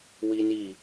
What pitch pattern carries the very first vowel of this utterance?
high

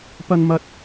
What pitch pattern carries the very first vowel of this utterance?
high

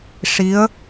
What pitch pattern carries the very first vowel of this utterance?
rising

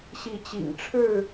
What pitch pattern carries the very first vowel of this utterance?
rising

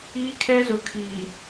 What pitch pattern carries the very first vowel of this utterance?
high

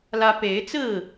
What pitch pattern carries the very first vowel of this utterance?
high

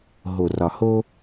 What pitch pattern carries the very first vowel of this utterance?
low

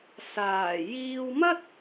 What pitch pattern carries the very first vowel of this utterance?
low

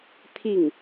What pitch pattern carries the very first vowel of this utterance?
falling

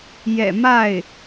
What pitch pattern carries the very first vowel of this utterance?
low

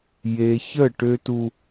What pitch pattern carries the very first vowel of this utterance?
low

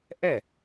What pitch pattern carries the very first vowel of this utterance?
falling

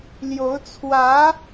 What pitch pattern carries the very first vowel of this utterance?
rising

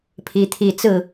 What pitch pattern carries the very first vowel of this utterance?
rising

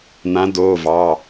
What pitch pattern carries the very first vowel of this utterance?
rising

